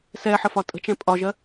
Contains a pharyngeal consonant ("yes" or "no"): yes